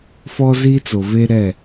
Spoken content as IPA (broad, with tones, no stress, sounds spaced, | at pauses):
f ɔ˦ z i˦ t͡s o˨ v e˦ ɾ ɛ˦˨